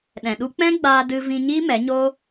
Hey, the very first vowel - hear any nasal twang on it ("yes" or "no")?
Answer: yes